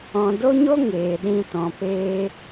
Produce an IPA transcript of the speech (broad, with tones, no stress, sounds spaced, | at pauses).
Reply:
ɔ̃˧ d o˦ ɲ o˦ ŋ eː˨ ɗ ĩ˧ t ɔ̃˨ p eː˧